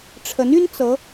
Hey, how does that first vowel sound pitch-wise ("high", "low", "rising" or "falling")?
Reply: rising